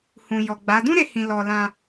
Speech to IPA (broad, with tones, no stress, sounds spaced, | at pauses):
h ũ˨ j ɔ˨ ɡ͡b a˨˦ d ũ˦ ɾ e˧ h ĩ˨ l ɔ˨ l ã˧